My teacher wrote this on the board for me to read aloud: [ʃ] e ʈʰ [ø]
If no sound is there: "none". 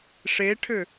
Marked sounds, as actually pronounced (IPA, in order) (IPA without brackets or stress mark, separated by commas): ʂ, ø